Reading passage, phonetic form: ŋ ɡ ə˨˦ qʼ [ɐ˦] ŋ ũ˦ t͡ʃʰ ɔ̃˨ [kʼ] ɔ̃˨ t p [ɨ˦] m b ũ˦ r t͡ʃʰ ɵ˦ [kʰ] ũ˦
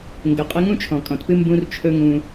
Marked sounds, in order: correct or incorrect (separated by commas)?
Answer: incorrect, correct, correct, incorrect